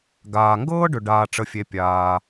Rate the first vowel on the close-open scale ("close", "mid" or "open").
open